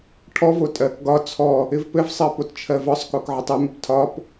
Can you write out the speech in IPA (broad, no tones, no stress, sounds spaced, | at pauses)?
ʈʰ ɔ v o tʼ ɜ k ɡ ɒ t͡sʰ ɔ | ɪ v p ɘ v sˤ ɜ p o t t͡ʃʰ ɜ v ɒ sˤ k o k ʕ ɪ tˤ ɘ m ɪ p tʰ ɒ p